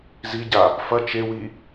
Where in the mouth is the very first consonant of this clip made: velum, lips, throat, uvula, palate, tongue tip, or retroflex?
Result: tongue tip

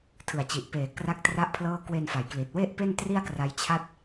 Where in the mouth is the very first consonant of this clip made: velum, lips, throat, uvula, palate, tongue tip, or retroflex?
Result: tongue tip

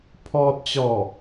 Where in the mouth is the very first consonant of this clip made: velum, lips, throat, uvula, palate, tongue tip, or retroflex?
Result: lips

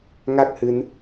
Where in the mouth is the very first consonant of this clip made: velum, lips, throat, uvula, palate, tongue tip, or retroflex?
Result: velum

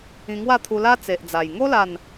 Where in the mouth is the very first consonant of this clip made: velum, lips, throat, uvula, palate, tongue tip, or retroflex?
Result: velum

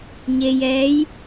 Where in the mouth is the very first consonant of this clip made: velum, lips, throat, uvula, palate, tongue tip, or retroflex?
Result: palate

